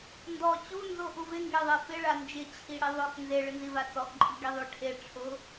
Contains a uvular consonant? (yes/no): no